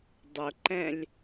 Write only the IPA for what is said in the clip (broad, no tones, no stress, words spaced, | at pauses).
dˤʊǃɛ̃lʲ